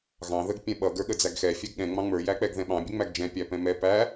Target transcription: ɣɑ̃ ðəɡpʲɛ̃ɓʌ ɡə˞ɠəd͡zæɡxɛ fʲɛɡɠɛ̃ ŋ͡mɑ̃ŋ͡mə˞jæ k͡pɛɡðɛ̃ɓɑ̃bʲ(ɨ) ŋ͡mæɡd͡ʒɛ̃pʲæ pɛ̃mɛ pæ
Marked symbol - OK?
no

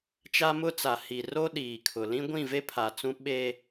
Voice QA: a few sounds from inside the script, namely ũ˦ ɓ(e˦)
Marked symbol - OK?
yes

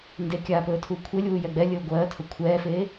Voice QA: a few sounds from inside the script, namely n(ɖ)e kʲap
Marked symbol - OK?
no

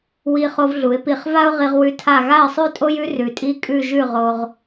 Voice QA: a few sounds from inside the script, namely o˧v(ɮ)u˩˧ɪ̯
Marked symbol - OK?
yes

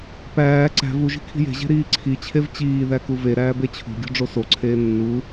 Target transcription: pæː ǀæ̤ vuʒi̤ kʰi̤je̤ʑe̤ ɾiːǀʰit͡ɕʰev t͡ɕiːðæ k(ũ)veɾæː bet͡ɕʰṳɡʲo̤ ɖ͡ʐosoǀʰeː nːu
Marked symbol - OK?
no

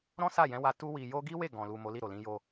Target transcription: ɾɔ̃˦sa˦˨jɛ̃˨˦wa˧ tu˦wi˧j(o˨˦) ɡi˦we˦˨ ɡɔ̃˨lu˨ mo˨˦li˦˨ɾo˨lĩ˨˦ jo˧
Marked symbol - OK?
no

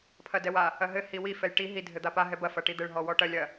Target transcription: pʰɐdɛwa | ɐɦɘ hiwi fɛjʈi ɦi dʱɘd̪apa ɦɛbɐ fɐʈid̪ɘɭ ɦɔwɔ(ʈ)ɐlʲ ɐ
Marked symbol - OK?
yes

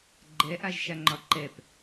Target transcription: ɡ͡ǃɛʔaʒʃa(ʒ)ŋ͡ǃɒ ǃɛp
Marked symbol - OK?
no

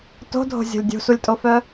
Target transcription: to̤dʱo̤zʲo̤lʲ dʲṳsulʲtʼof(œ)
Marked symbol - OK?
yes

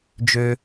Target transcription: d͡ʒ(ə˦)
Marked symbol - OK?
no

